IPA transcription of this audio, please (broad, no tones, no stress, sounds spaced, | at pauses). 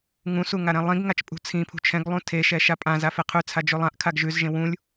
ŋ ũ s u ŋ a ɾ ɛ̃ lˠ ĩ ɡ ŋ a t͡ʃ pʼ ṳ t͡sʰ ĩ pʰ ṳ t͡ʃʰ ɛ̃ ɡ lˠ ũ tʰ e ʃ ɛ ʃ a pʼ ã z a f e qʰ ʉ t͡sʰ a d͡ʒ ʉ lˠ ã ʔ kʰ a ɡ ʒ ʉ z ʒ ẽ w ũ lʲ